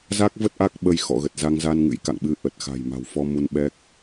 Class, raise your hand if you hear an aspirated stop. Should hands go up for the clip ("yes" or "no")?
no